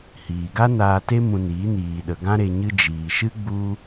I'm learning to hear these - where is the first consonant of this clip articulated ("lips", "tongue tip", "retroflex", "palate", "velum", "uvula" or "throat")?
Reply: throat